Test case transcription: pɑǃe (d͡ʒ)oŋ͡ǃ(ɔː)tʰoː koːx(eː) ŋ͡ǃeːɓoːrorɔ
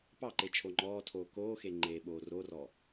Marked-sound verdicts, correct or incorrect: incorrect, correct, incorrect

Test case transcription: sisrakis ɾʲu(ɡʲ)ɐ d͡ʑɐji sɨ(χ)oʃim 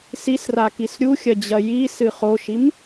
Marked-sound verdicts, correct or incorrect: incorrect, correct

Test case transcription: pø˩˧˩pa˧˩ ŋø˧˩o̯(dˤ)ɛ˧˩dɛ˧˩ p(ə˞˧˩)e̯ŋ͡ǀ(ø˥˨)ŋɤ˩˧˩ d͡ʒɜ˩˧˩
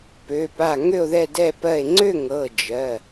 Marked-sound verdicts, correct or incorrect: incorrect, incorrect, correct

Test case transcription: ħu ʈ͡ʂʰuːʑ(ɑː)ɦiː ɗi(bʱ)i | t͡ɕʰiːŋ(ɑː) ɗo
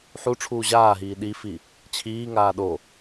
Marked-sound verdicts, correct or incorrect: incorrect, incorrect, incorrect

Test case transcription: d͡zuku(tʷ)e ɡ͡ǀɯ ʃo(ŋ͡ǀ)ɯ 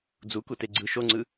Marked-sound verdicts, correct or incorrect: incorrect, correct

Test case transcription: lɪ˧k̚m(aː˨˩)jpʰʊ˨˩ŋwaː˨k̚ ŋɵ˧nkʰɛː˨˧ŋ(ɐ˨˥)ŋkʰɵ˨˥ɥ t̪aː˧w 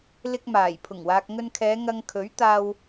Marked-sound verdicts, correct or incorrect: correct, incorrect

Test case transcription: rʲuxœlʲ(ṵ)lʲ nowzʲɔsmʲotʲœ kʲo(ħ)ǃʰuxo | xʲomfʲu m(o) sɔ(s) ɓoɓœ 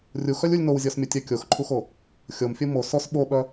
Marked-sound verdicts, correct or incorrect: incorrect, incorrect, correct, correct

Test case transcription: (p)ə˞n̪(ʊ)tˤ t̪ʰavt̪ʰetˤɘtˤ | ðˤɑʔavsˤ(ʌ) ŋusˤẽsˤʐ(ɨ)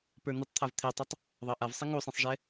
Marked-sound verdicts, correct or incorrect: correct, incorrect, incorrect, incorrect

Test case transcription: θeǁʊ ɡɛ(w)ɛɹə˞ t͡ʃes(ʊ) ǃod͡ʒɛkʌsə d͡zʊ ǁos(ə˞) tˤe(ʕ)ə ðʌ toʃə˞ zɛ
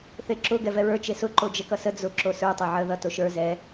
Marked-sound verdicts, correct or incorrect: incorrect, correct, correct, correct

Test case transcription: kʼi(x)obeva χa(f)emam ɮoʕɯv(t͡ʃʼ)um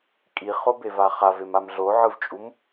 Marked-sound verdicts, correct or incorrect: incorrect, incorrect, correct

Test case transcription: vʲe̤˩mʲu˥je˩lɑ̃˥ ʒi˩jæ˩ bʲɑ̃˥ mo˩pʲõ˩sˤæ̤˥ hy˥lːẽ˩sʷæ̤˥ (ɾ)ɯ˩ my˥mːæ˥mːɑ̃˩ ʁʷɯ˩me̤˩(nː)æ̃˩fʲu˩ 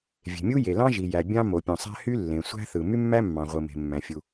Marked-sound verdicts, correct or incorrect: incorrect, incorrect

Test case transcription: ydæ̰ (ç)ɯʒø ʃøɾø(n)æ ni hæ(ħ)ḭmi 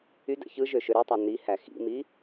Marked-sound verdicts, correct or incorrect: correct, incorrect, incorrect

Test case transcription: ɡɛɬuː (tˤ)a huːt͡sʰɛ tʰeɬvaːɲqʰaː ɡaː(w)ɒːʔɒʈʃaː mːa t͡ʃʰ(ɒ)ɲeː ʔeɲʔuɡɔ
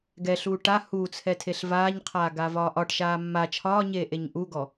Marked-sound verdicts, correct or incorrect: incorrect, incorrect, incorrect

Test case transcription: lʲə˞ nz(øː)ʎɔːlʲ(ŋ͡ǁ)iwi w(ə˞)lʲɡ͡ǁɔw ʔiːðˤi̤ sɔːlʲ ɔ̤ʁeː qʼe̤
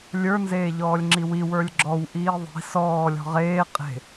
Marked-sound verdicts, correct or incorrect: incorrect, correct, correct

